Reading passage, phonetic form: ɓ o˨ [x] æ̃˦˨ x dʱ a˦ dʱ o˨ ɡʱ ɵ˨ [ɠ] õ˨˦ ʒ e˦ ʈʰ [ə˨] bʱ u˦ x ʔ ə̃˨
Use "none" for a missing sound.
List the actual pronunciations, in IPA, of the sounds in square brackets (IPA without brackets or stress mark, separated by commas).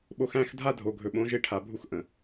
x, ɓ, a˨